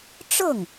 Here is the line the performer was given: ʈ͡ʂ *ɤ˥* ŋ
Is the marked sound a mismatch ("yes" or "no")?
yes